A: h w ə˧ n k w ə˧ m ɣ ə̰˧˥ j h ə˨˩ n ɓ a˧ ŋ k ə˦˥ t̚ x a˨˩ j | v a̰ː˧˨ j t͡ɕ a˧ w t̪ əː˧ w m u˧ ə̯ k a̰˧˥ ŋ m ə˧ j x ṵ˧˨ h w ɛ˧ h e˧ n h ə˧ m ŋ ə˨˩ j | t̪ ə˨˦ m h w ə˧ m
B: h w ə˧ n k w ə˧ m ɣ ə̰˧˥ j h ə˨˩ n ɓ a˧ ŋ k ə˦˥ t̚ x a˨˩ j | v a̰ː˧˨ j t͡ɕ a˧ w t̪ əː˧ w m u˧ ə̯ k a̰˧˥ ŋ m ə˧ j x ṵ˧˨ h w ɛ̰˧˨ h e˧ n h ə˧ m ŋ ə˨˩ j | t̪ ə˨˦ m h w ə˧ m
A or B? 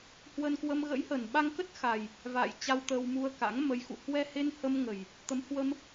A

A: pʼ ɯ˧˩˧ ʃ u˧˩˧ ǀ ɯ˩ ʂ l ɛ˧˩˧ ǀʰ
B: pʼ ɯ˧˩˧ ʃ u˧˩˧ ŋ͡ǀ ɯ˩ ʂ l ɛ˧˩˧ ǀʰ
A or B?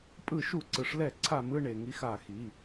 A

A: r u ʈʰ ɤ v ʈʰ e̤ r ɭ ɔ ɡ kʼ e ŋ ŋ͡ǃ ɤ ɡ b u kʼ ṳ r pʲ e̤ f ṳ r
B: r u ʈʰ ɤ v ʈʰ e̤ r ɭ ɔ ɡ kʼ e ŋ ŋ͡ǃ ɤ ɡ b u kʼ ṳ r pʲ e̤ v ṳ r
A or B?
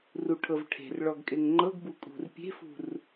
A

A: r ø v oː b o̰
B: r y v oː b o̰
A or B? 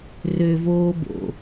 A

